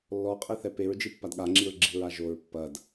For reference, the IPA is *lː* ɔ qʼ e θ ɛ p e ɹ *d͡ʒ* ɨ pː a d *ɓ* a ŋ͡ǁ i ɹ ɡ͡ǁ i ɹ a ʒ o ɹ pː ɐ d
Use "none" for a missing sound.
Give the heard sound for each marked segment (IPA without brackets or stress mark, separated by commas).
lː, d͡ʒ, ɠ